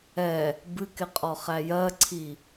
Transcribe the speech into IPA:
ɛ | bɨkɪqʼɔχæ jɜǀʰi

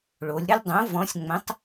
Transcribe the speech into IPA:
ɭo˩˧lʲɾə˦lʲdˤõ˨˥ vɔ̃˨˥sʲŋ͡mə̃˨˥tˤ

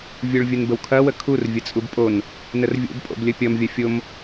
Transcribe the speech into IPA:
vʲuɭvʲənbəwkʰɐ wəkʰur vʲət͡sʼubpʼon | nərvʲo̰b pʼo̰blʲəpʲʌm vʲɐfʲom

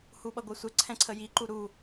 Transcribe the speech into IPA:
huɓʌɡʷəsʷə ǀʰɛ̃ǀʰəji ǃuɾu

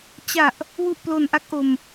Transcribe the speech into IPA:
t͡ɕa˨˩ʔ | wu˨˩ʔ plo˨˩nʔa˥˩k̚ʔo˧m

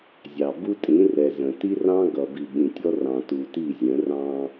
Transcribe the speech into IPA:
zʲɑ˨ bu˦tʼĩ˨˦rɛ˨ zə̃˨ ti˦rɑ̃˦ɡʌ˨ bi˨ɓĩ˨tʲɔ˦ rɑ̃˨tu˨ti˦˨zʲə̃˨˦ rɑ̃˦

